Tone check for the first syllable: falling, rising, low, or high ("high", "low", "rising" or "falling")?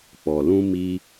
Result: low